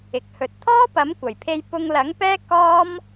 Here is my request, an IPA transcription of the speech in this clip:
ɪ˨˥ k̚ h ɵ˧ t̚ t̪ʰ ɔː˥ p ɐ˨˥ m kʷ ɐ˨˩ j pʰ e˧ j p ʊ˧ ŋ l ɐ˨˥ ŋ p ɛː˥ k ɔː˥ m

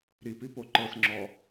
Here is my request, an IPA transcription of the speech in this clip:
ɾ i p i p o ǃ ɤ s ŋ͡ǁ ɔ

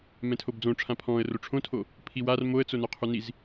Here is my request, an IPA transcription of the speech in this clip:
m ɛ̃ tʰ o b d͡z õ ʈ͡ʂʰ ã pʰ ɔ̃ː ə̯ r o ʈ͡ʂʰ õ tʰ o | pʰ i w a r m o ə̯ t͡s o n œ qʰ u n i z

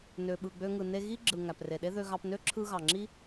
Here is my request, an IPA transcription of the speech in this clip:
n ø˨ ɓ ɯ˨ ɡ͡b ø˧ ŋ ɯ˨ n e˧ ɣ i˦ ɡ͡ǁ ɯ˨ ŋ æ˨ p r e˨ ɗ e˦ ð ø˧ ɣ ɑ˧ p n ø˦ ǁʰ ɯ˧ ɣ ɑ˨ ŋ͡ǁ i˦

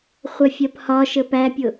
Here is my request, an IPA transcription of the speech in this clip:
χʷ ɜ fʲ ɜ p h ɒ ʃ ə p æ pʲ ʊ

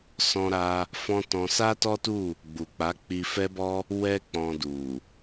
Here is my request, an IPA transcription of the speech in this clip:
s ɔ̃˦ ɾ a˦ | f ɔ̃˦ t ɔ̃˧ s a˦ t ɔ˦ t u˦˨ | ɡ͡b u˨ k͡p a˨˦ k͡p i˧ f ɛ˦ b ɔ˦ | w ɛ˦ k͡p ɔ̃˧ d u˨

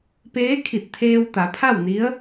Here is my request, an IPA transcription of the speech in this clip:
p eː˧˥ kʰ i˧˩ t̚ t̪ʰ eː˧ w t̪ a˩˧ pʰ a˥˨ w n i˧˥ ə̯

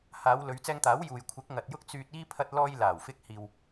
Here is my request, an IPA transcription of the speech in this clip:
h aː˨˧ w l ɵ˨˧ ɥ t͡s ɛː˧ ŋ t̪ aː˨˥ w j uː˨ j kʷʰ ɪ˨˥ k̚ ŋ ɐ˨ t̚ j ʊ˥ k̚ t͡s yː˧ t̚ iː˥ pʰ ɐ˥ t̚ l ɔː˧ j l aː˨˩ w f ɪ˧ k̚ h iː˧ w

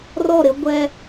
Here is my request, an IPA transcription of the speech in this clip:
r ɔ˦˨ ɾ ɪ˦ ɡʷ ɛ˦

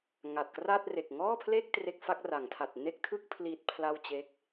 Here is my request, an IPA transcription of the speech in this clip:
ŋ a˨˩ t̚ k r a˥˩ t̚ r e˨˩ k̚ ŋ ɔː˥˩ pʰ l e˥˩ k̚ t r e˦˥ k̚ f a˦˥ k̚ r a˩˦ ŋ tʰ a˨˩ t̚ n e˥˩ k̚ tʰ ɯ˥˩ k̚ pʰ l i˦˥ t̚ pʰ l a˥˩ w t͡ɕ e˦˥ k̚

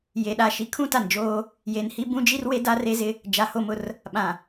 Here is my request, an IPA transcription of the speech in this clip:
j e˨ ɗ a˦˨ ʃ i˦ kʰ ũ˦ t a˨ n d͡ʒ oː˦ | j e˨ n h i˦ b ũ˦ d͡ʒ i˦ r w e˦ d a˦ r e˦ z ɪ˦ | d͡ʒ a˨ h o˦˨ m ʊ˦ r | ɓ ã˨

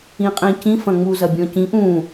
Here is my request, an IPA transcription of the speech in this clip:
ĩ qʼ ĩ c ĩ f ɐ̃ ŋ͡m u z ɐ bʲ ɔ̃ c ĩ ʔ ũ

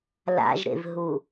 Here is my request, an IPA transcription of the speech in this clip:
l a̰ ʒ ɾ ḛ v ɦ u

